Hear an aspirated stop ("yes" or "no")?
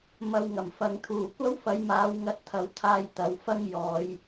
yes